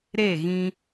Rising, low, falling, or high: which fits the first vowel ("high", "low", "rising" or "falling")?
falling